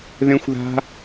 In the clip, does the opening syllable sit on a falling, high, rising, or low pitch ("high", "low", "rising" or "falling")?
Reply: high